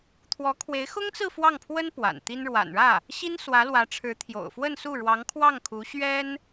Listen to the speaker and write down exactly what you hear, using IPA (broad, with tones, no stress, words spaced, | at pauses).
t̪ʰwɔ˧˥kʰwe˧˥ɪ̯xʊ˥ŋt͡sɹ̩˥˧ fwɑ˥˩ŋpʰwə˥n pwa̰˨˩nt̪i˥n ɻwa̰˨˩nɻä˥˩ | ɕi˥nswä˧˥lwä˧˥ʈ͡ʂʰɻ̩˧˥ t̪ʰjo̰˨˩ʊ̯fwə˥˧nsu˥˩ ɻwɑ˧˥ŋkʰwɑ˥˩ŋ kʰu˧˥ɕɥɛ˥n